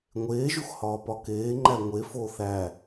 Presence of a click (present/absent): present